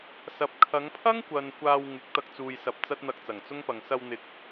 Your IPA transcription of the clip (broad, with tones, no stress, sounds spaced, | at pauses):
s ɐ˨ p̚ kʰ ɐ˨˧ ŋ pʰ ɐ˥ ŋ kʷ ɐ˨ n kʷ aː˧ w ŋ ɪ˨˥ k̚ t̪ ɐ˧ k̚ t͡s uː˨ j s ɐ˨˥ p̚ t͡s ɐ˥ t̚ n̪ ɐ˧ k̚ t͡s ɐ˨˩ ŋ t͡s ʊ˥ ŋ p ɐ˨ ŋ s ɐ˧ w n̪ ɪ˨˥ k̚